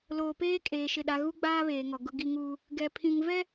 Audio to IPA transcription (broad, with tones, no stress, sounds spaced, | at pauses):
l oː˨ p eː˦ kʼ eː˨ ʃ ɪ˦˨ ɗ a˦ ɣ u˦ ɡ͡b aː˦ β eː˨ ŋ ɔ˨ ɡ ʊ˦ ɡ i˦ ŋ uː˦ | ɡ ɛ˨ pʰ ĩ˨ ŋ v ɛ˦